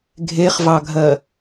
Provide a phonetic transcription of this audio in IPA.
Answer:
ɡʱ e χ v ɑ ɡʱ ɜ

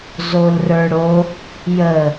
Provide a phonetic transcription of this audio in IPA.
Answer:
z o l r ə˞ ɽ o | j ə

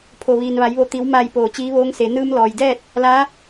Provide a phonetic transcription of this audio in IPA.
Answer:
pʰ o˩ ʋ iː˩ n ʋ a˩˧ j ʋ o˧˩ t̪ i˩˧ w m aː˧˩ j p oː˧˩ t͡ɕ iː˧˥ ʋ oː˧˥ ŋ s e˩˧ n ɯː˧ m l ɔː˩ j d ɛː˥˨ t̚ | l a˧˥

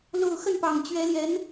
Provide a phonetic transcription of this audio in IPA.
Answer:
l o˥˧ ʊ̯ x ə˥˩ n p ɑ˨˩ ŋ t͡ɕ ɥ ɛ˧˥ l j ɛ˧˥ n

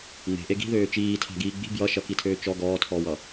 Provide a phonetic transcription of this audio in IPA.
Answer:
ŋ͡m e̤ ʔ e ɡ i̤ ð øː t͡ʃ iː tʰ a̤ ɡ iː ɡ͡b i̤ b j ʌ ʃ ʌ k i tʰ øː t͡ʃ ɔ ɡ ɔː tʰ ɔː w ʌ

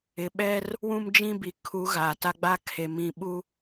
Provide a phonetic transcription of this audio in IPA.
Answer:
ɪ˨ ɓ ɛ˦ r | w ũ˦ m d͡ʒ ĩ˦ b i˨ kʰ u˨˦ ɣ a˨ t a˦ ɡ͡b a˦ kʰ e˨ m ĩ˨ ɓ u˦

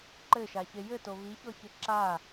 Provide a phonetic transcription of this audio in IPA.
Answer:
ǃ ɘ ʃ a ç e j ɘ t o β i ç ɔ ç ɘ ǁ a

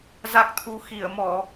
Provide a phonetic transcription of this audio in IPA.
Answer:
z a˦˥ k̚ t̪ʰ u˧ x i˧˩ ə̯ m ɔ˧˩˨

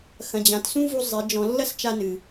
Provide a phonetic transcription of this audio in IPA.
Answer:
x ɐ̃˨ d͡ʑ ã˨ t s ũ˦ v u˧ zˤ e˨˦ d͡ʒ ɔ̃˧ lː ɐ˦ s t͡ʃ a˧ n ɨ˨

